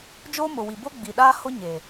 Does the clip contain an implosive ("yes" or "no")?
yes